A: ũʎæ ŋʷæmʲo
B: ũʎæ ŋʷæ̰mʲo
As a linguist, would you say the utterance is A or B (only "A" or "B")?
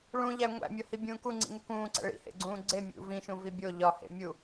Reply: B